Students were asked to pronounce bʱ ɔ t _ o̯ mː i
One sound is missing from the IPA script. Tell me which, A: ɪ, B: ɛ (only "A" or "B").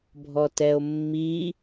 B